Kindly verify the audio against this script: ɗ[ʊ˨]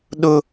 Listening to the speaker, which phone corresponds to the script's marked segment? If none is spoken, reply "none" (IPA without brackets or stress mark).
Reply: ʊ˦